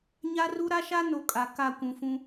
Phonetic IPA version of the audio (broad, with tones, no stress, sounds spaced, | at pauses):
ɲ a˦ r u˦ ɾ a˦ ʃ a˦ n o˨ kʼ a˨ k a˦˨ kʷ ũ˨ f ũ˦